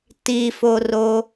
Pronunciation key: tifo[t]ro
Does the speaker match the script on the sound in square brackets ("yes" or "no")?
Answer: no